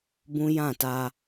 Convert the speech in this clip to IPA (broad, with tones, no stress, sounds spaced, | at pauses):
b ũ˦ j ã˦˨ t a˦